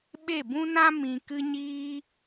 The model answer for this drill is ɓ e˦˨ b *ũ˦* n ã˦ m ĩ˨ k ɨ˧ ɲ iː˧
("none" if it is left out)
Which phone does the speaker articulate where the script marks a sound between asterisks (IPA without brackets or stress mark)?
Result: ũ˦